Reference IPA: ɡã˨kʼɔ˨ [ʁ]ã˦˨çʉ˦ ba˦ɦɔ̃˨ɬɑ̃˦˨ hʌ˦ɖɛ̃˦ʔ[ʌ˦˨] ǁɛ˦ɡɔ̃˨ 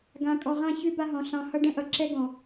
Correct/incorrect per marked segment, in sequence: correct, incorrect: ʌ˨

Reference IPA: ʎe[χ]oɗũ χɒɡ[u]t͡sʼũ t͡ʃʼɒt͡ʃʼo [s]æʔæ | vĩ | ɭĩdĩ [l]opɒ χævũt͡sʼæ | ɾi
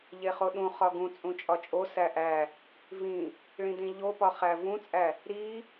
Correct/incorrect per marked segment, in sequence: correct, incorrect: ũ, correct, incorrect: ʎ

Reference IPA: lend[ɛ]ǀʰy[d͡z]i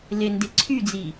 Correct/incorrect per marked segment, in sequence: incorrect: e, correct

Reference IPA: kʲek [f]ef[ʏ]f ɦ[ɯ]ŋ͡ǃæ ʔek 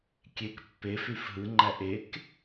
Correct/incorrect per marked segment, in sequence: incorrect: pː, incorrect: y, correct

